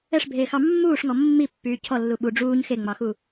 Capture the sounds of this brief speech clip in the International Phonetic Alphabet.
ɛ ʂ bʱ eː x ɑ mː uː ʂ ŋ ɔ mː i pː yː cʰ ɔ lː u ɓ u ɖ͡ʐ uː ɲ x e ŋ͡m ɑ x u

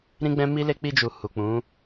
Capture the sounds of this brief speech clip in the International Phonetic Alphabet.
ɾ ĩ˦ ɡ͡b ɛ̃˦ m i˦ l e˦ k͡p i˧ d͡ʒ u˨ h u˨ k͡p ũ˨˦

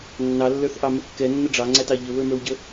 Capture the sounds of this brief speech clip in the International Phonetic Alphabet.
nː ɑ lː ə˞ θ ʔ ɑ m ə kː ɛ nː ə ɖ͡ʐ ɑ ŋ͡ǀ æ t ɑ ʎ ə β ə˞ m ə˞ w ɟ ə

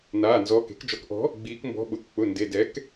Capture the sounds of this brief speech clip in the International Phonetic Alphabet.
n aː˩˧˩ n z ɔː˩˧˩ k e̤˩˥ k d͡ʒ ɔ˩˥ k ʔ ɔ̤˩˥ | ɡ͡b iː˩˧ k m b ɔ̤˩˧˩ ɓ ʊ˩˧˩ k k͡p ʊ˩˧˩ n d e˩˧˩ d ɛ˩˥ k

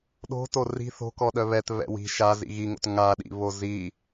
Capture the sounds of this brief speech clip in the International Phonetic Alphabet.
ɗ o̤ t o r i̤ θ o̤ k ɔ ɗ œ β ɛ t β ɛ̰ w i̤ ʃ a z ḭ ɣ i ŋ o̰ t ŋ a ɗ ḭ β o z i

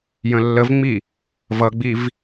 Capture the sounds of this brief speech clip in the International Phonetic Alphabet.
j ə̃ lː ə v ŋ͡m i | v ʌ ɡ͡b i v

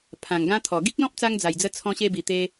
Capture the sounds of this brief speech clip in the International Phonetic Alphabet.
pʰ ã˨˩ ŋ ɡ ã˦ t̪ʰ ɔ˨˩ ɡ i˦ k̚ l ɔ̃˦ p̚ t͡s a˧ ŋ d͡z a˨˩ j d͡z ə˦ t͡sʰ ɔ̃˦ ɕ e˦ b i˨˩ t̪ e˧

